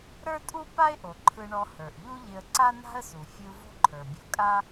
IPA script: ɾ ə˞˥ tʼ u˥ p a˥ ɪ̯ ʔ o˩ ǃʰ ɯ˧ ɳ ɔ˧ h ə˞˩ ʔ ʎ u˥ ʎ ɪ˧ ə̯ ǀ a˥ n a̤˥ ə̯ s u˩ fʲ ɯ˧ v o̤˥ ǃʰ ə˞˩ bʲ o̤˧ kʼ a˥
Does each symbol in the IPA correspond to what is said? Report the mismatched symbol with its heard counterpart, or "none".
none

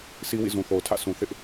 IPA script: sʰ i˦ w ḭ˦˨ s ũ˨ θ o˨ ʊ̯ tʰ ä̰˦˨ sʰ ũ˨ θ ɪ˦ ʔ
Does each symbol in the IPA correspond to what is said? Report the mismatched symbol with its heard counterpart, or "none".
s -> z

